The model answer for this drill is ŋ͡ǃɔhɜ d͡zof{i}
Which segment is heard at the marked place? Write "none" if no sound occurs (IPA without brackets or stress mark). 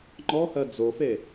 e